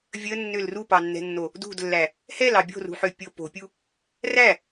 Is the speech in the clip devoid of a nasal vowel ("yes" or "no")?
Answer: yes